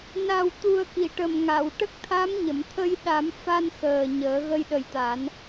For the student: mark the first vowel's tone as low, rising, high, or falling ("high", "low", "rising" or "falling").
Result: low